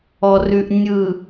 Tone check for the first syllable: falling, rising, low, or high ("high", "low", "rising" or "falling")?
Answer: low